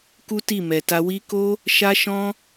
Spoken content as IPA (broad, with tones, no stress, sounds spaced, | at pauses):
k u˦ t i˦˨ m ɛ˨ t a˧ w i˦ k o˦ | ʃ a˦ ʃ ɔ̃˦